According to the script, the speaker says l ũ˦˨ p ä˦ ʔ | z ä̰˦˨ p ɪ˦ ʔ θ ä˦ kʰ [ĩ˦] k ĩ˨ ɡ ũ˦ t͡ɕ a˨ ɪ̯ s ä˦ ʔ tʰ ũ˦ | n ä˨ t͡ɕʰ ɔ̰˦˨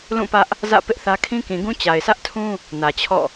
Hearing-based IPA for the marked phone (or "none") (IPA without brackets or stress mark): ĩ˦